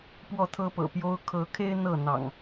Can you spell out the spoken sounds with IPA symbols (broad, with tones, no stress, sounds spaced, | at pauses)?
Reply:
p w ɔ˥˨ t̪ʰ ɤ˦ p ɤ̰˨˩ p j o˦ ʊ̯ kʰ ɤ˨˦ kʰ e˦ ɪ̯ n̪ ɤ˥˨ n̪ ɑ̰˨˩ ŋ